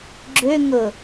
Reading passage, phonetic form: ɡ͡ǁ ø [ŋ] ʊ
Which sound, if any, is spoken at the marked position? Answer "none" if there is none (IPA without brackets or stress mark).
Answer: ŋ